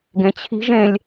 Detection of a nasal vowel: present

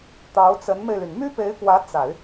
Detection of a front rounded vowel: present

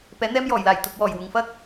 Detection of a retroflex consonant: absent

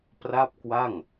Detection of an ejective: absent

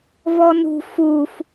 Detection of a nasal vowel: absent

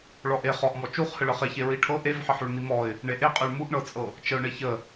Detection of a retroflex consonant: present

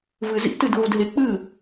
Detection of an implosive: absent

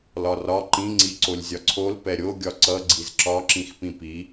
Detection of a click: present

